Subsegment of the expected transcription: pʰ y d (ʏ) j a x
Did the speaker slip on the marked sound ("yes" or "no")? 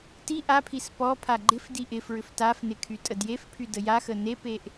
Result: yes